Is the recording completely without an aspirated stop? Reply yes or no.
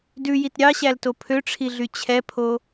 no